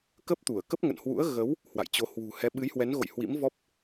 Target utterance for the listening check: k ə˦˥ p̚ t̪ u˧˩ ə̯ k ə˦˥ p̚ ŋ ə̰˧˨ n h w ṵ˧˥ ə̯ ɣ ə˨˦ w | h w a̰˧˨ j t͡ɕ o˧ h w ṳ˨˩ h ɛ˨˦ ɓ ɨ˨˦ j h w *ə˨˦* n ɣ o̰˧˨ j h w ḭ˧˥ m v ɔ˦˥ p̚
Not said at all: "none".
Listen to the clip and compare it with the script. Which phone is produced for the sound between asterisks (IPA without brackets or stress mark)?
ɛ˨˦